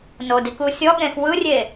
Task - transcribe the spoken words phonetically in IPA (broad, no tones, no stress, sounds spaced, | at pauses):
n o d i k u sʲ ɔ ɠ ẽ x w ɯ rʲ e